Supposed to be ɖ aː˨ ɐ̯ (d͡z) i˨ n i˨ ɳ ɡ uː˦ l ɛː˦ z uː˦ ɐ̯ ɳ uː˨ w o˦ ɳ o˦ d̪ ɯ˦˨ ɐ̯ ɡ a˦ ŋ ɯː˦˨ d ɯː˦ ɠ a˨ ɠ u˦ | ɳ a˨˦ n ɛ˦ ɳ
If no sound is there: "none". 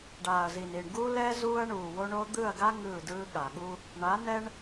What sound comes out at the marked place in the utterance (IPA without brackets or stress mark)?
z